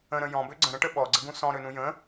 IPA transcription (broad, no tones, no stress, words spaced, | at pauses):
ə̃ɾə̃ jɔ̃bø ɡ͡ǀə̃ɾə̃ʈə ɓɔɡ͡ǀəɡũ sɔ̃ɾønũ jə̃